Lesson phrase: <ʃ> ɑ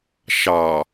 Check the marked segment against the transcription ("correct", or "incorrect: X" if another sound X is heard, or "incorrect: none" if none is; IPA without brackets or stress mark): correct